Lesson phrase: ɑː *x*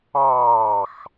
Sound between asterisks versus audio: correct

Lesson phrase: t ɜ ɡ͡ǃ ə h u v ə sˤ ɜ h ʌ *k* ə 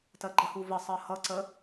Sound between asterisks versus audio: incorrect: ǀ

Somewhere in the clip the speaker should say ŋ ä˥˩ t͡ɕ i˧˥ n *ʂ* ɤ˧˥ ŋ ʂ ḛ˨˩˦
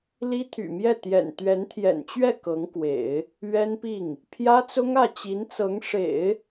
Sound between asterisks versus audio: incorrect: t͡s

